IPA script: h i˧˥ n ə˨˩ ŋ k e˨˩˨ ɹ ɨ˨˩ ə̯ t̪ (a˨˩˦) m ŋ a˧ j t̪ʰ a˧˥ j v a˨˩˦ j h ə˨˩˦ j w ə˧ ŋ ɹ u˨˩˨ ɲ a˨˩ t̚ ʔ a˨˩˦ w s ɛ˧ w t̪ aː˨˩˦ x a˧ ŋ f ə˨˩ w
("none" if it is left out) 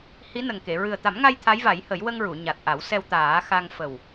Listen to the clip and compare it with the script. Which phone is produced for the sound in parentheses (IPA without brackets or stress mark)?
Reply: a˨˩˦